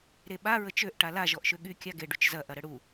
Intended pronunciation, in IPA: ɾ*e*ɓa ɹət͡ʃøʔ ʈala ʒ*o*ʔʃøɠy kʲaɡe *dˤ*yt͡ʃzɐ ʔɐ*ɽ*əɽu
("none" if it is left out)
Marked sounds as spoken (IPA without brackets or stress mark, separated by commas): e, ɔ, ɖ, ɾ